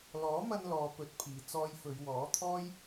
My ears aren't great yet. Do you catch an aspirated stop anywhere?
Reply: yes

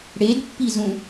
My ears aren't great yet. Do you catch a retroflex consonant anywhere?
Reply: yes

